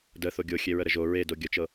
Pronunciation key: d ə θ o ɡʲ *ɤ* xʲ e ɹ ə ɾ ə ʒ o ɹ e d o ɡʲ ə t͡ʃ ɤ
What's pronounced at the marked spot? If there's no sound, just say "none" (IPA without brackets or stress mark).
o